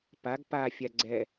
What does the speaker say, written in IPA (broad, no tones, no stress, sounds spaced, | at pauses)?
p a ɡ p a fʲ a ɡ͡ǀ ɛ